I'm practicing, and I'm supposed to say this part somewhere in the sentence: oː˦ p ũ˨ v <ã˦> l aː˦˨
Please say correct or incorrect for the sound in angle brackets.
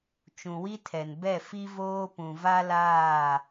incorrect